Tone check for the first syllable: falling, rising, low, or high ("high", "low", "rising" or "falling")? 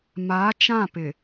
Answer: rising